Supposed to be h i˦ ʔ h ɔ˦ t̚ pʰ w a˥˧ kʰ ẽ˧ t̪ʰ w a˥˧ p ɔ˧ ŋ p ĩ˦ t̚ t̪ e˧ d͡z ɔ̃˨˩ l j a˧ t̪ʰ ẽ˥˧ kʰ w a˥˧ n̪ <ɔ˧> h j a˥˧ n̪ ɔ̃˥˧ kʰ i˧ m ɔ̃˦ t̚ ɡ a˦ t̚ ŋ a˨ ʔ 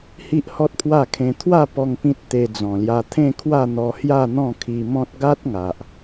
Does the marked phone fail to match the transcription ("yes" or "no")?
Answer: no